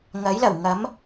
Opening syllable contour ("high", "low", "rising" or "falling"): rising